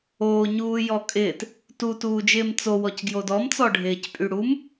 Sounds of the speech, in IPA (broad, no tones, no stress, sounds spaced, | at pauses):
oː ɲ uː j ɔ kʼ ɪː t | t u t uː d͡ʒ ɪː m t͡s o w ɔ c ɡ j o d ɔ m t͡s ɔ ɖʱ ɪː c pʼ y ɽ u m